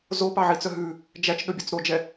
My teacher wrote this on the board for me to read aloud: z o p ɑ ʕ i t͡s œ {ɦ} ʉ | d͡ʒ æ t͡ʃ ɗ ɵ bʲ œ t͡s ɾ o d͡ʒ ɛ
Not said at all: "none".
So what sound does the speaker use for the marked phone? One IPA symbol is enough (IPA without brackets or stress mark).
ɦ